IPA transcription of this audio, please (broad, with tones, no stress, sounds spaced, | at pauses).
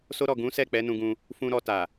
s o˦ ɾ ɔ˦˨ ɡ ũ˨˦ s ɛ˦˨ k͡p ɛ˨˦ n ũ˧ ɡ ũ˧ | f ũ˧ ɾ ɔ˧ t a˨